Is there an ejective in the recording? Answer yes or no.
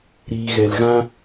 no